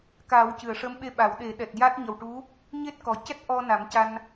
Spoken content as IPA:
k a˨˩˦ w c ɨ˨˩˨ ə̯ ʂ ə˧˥ m ɓ e˧ ɓ a˨˩˦ w ɗ e˨˩˦ ɗ ɛ˨˩ t̚ j a˦˥ t̚ ɲ ə˨˩ w ʈ u˧˥ | ɲ e˦˥ t̚ k ɔ˨˩ c ɛ˦˥ t̚ ʔ ɔ˧ n a˨˩˦ m c a˧ n

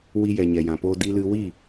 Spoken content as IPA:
w i˧ j ɛ˨ ɲ ɛ˨ j ã˨ p oː˧ d i˧ l ɨ˧ w i˦˨

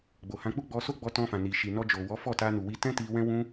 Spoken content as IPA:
ɡ͡b o˨ h ã˧ k͡p u˦ ɡ͡b ɔ˧ s o˦ ɡ͡b ɔ˧ t ɔ̃˧ f ã˨ n i˨ ʃ i˨ n ɔ˧ d͡ʒ o˨ w ɔ˨˦ f ɔ˦˨ t a˧ n u˨ w i˧ t ɛ̃˦ t i˧ w ɛ̃˦ w ũ˦

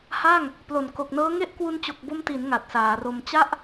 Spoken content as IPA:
h a˥˩ ŋ | p l o˨˩ n k o˨˩ k̚ n ɤː˦˥ ŋ e˥˩ ʔ k w u˧ n t͡ɕ o˨˩ k̚ b o˧ m t i˩˦ n ŋ a˨˩ t̚ s aː˩˦ r o˧ m t͡ɕ a˥˩ ʔ

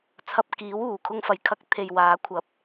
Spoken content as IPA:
t͡sʰ ɐ˧ p̚ k iː˨˥ w uː˨˩ kʰ ʊ˧ ŋ f ɐ˨˩ j kʰ ɐ˧ k̚ t̪ʰ e˨ j w aː˨˥ kʷʰ ɐ˨˥ p̚

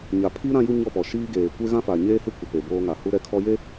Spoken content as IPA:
ɲ a˨ pʰ i˦ ɾ ã˦ j u˦ ɲ ɔ˦˨ p ɔ˨ ʃ iː˦ ɡ eː˨ kʷ e˦ ɣ ã˦ f a˨ ɲ eː˦ h ɪ˦ kʷ ɪ˨ p e˨ b oː˦ ŋ a˨ h u˦ ɾ ɛ˦ kʰ ɔ˦ j e˦

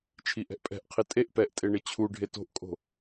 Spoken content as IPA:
t͡ʃʰ i ʔ ɛ̤ ʔ pʼ ɛ̤ ʔ qʰ i tʼ e ʔ p ɛ ʔ tʼ e ɳ ɪ t͡ɕʰ u ɖʱ e t o̤ ʔ kʼ o̤

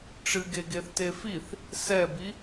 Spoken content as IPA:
ʈ͡ʂ ɨ ɡ e ɡ e θ t e f i θ | s ɛ b i

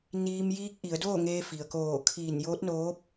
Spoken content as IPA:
n iː˧ m j iː˧ k̚ ʔ i˩˧ ə̯ d oː˥˨ ŋ eː˧ f i˩ ə̯ k oː˧˩ kʰ iː˧˩ n j oː˧˥ t̚ n oː˧˥ p̚

